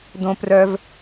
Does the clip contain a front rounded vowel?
yes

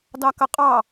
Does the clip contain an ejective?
yes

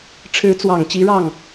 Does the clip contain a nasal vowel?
no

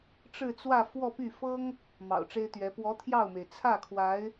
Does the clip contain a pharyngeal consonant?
no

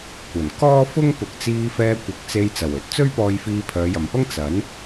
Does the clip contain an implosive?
no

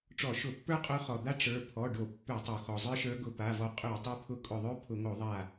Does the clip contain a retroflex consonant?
yes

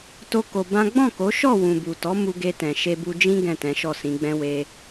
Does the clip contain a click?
no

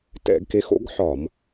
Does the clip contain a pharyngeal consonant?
yes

